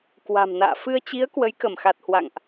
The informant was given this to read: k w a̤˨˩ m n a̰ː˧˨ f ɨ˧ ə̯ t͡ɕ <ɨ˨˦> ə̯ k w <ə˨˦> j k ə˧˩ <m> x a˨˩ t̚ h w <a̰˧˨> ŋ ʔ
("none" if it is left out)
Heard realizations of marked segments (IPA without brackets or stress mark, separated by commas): i˨˦, ə˨˦, m, a̰˧˨